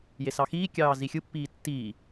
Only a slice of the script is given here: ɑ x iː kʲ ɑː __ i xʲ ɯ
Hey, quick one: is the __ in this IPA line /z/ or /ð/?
z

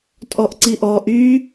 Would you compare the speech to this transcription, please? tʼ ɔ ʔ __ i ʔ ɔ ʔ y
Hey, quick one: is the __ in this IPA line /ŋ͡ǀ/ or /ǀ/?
ǀ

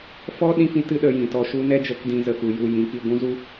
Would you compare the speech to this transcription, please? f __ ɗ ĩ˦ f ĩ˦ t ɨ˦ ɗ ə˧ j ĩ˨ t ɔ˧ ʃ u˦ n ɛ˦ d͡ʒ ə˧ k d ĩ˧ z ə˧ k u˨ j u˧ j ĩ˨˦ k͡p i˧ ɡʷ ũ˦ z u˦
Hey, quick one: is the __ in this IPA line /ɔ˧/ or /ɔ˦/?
ɔ˦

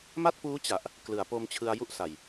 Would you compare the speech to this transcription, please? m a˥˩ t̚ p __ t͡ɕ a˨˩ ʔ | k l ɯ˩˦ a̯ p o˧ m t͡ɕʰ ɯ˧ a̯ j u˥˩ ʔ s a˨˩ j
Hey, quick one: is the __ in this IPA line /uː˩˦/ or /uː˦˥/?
uː˦˥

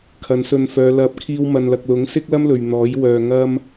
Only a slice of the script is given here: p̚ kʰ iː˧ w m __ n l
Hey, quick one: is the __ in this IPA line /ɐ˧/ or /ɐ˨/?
ɐ˨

